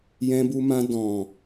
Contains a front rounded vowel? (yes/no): no